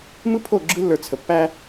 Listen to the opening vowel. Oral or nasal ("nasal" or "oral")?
oral